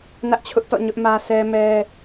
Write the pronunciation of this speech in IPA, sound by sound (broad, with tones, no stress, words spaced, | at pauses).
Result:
nä˦ʔt͡ɕʰʊ˦ʔtɔ̰˦˨ ɲʊ˦ʔmä˦ sʰɛ˦mɛ˦